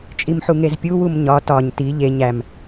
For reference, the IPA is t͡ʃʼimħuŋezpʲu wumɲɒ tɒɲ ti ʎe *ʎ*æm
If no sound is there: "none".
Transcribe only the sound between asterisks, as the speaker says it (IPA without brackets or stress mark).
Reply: ɲ